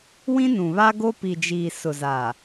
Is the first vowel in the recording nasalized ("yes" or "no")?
yes